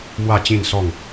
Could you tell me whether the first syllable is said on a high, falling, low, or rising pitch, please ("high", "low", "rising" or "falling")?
falling